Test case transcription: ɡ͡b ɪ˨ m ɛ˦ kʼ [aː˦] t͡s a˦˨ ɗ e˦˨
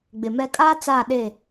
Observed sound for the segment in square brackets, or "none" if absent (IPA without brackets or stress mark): aː˦